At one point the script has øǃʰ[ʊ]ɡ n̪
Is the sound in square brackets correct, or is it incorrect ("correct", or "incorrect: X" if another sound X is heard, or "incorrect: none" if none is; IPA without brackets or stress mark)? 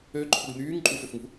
correct